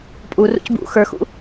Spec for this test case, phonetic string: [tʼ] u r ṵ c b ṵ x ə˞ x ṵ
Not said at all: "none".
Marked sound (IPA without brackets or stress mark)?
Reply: pʼ